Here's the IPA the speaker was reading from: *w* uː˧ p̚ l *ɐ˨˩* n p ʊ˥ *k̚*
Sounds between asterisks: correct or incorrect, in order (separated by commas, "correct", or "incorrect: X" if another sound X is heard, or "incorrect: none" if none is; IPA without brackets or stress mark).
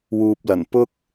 correct, correct, correct